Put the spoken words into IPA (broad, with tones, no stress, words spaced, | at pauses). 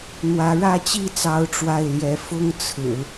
n̪wä˧˥ɻä˥˧t͡ɕi˥˩t͡sɑ˧˥ʊ̯ ʈ͡ʂwa˥˩ɪ̯ljɛ˧˥ fʊ˥ŋt͡sʰɹ̩˨˩˦